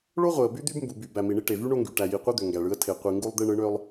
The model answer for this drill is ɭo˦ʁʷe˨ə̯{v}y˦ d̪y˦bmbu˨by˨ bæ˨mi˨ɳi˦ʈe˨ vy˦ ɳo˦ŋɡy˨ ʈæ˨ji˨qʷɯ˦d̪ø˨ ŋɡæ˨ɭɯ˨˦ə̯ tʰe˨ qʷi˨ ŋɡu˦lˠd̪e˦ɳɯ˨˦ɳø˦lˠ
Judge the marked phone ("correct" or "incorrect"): incorrect